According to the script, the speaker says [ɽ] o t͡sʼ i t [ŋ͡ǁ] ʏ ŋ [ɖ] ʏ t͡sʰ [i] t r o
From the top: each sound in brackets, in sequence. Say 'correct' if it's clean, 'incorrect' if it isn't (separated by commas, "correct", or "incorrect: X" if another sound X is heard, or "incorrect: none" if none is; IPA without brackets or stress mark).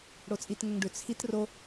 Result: correct, incorrect: ŋ, correct, correct